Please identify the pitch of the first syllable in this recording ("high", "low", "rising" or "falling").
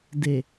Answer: low